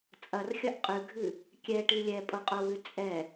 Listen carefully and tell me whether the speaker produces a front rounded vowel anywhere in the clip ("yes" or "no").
no